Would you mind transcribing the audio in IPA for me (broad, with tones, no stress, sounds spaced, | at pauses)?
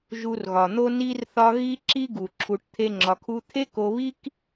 ʒ u˧ r ɣ ɒ˨ n̪ o˦ n i˦ r θ ɒ˦ ɣ i˦ ǁ i˦ ɡ u˨ ǁʰ u˧ ʈ t̪ʰ e˦ ŋ͡ǁ ɒ˧ kʰ u˦ t̪ʰ e˦ k o˧ β i˦ k